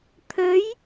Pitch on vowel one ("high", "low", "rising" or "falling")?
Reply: rising